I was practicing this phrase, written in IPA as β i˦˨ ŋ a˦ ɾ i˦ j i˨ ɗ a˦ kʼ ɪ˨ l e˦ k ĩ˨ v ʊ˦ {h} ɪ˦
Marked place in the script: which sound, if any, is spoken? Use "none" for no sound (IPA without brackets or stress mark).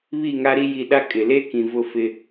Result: f